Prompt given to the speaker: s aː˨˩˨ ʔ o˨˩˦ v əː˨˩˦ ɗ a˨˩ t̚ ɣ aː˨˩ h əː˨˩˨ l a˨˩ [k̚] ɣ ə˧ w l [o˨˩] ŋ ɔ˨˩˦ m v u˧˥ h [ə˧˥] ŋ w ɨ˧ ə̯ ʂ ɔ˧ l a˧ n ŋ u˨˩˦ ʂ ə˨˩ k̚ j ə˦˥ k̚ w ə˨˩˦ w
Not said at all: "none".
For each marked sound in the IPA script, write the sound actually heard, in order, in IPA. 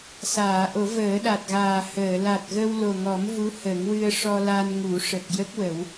t̚, o˨˩, ə˨˩˦

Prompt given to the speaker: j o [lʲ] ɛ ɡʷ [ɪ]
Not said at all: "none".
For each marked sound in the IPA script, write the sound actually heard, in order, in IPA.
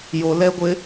l, ɪ

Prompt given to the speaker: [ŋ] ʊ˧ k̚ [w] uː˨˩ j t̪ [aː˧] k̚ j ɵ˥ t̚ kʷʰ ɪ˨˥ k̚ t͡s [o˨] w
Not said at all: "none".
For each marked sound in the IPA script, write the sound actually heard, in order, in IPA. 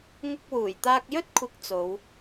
ŋ, w, aː˧, o˨˧

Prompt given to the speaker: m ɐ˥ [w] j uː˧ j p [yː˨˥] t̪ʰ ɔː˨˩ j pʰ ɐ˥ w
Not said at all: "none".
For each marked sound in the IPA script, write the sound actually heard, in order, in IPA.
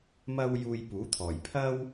w, uː˨˥

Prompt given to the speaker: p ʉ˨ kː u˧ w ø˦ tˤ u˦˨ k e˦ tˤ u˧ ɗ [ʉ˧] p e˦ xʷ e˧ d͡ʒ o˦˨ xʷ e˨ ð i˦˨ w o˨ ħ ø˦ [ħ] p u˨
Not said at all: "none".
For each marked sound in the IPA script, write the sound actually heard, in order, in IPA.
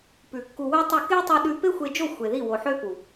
ʉ˧, none

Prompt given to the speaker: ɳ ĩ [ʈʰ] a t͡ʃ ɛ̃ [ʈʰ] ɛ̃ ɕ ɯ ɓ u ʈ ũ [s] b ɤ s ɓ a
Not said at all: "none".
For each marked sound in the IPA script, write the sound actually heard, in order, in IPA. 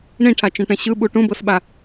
ʈʰ, ʈ, none

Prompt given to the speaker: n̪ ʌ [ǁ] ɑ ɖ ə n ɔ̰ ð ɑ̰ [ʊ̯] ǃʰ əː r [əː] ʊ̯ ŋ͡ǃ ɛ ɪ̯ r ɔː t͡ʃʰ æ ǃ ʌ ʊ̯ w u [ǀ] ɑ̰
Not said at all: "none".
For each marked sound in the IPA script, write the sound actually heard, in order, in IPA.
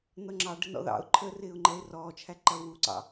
ŋ͡ǁ, ʊ̯, ɪː, ǀ

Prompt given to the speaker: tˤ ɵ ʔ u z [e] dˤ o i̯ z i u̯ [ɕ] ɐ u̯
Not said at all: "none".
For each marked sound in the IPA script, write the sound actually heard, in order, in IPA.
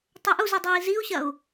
i, ɕ

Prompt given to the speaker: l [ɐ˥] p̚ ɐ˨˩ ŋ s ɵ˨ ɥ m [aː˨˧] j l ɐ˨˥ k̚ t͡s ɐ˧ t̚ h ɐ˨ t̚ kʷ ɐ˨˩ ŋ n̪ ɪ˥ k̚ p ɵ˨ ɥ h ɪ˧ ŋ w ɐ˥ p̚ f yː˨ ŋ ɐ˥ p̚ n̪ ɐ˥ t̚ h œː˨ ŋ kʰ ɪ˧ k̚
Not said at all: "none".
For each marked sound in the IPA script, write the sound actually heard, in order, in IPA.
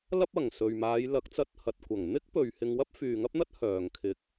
ɐ˥, aː˨˧

